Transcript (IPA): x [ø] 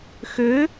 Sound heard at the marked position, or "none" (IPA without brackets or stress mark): ø